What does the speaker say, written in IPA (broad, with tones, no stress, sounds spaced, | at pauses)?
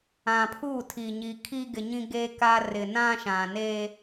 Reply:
ã˨ pʰ u˦˨ tʰ i˨ ɲ i˨ kʰ i˦ ɡ ɪ˨ ɲ ĩ˦ ɡ eː˦ k aː˦ r ɪ˨ n ã˦ ʃ ã˨ n eː˦